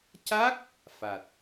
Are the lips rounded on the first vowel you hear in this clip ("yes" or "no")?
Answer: no